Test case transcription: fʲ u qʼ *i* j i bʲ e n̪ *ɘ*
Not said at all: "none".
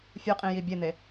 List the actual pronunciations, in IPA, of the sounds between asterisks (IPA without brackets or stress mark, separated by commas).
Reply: ĩ, e